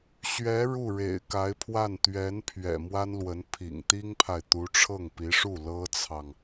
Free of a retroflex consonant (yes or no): no